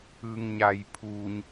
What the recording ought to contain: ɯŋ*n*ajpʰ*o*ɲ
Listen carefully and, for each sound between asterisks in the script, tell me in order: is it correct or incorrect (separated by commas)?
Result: incorrect, incorrect